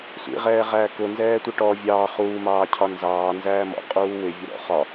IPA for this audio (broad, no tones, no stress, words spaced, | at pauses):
sʷḭʁɛːʁæː kʊnzɛːtʷɪ ʈɔ vʲɑː χuːmɑː cʰɒnzɑː nzæːmɔ̰ qʼuːwɪvʲʊ ɾɔ̰χɒ